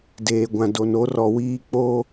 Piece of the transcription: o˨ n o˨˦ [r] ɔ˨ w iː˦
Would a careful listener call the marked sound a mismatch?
no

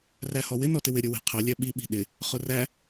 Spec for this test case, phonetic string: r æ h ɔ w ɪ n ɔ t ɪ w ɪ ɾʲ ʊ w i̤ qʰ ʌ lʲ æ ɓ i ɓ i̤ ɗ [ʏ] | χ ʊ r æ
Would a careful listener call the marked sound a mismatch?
yes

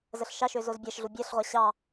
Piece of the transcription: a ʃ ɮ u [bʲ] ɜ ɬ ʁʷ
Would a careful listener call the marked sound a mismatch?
no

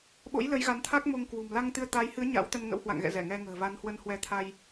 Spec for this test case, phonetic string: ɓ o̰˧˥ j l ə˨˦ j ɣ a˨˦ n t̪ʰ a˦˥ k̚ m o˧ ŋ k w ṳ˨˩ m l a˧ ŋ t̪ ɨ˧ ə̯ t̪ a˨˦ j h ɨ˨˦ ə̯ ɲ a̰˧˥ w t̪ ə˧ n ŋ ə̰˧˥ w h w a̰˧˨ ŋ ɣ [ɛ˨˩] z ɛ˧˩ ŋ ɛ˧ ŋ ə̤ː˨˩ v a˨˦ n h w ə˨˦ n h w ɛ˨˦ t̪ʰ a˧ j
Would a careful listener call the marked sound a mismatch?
yes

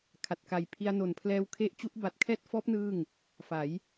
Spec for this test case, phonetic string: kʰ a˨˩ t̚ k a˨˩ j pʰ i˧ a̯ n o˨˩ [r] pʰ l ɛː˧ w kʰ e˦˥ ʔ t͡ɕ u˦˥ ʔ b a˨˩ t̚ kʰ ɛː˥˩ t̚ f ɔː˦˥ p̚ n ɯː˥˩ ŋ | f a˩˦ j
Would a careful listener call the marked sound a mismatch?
yes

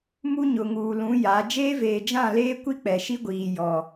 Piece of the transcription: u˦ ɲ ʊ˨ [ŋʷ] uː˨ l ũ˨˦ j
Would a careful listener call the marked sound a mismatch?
yes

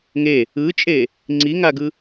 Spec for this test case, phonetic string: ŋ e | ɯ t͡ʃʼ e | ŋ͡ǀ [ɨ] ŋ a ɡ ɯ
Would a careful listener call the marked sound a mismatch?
yes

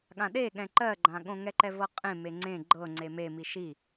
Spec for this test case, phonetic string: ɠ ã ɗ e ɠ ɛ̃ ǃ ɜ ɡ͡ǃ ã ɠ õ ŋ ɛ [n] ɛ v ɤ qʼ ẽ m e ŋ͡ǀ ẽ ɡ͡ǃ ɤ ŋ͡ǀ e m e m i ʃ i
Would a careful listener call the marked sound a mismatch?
yes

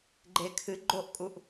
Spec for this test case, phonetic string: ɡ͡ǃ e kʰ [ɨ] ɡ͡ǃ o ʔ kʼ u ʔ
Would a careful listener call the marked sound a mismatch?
no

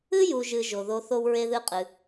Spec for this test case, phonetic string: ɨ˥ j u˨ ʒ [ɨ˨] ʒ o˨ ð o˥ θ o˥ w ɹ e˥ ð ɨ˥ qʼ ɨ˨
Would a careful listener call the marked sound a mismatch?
no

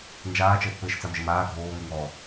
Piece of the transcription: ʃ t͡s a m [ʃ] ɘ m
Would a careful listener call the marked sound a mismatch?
yes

